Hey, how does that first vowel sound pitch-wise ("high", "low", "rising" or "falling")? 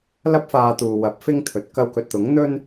high